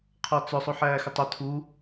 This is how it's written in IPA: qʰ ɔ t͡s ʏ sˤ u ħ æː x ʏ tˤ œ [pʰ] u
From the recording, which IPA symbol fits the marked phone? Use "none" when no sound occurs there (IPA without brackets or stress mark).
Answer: tʰ